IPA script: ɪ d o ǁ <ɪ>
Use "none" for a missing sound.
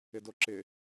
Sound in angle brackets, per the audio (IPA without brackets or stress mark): ɪ